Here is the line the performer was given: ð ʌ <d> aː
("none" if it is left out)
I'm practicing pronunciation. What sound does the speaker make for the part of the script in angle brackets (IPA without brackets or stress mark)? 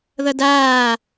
d